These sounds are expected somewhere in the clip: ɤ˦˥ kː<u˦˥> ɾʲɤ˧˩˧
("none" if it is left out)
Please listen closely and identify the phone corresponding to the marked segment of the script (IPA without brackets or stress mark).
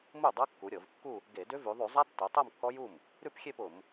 u˩˧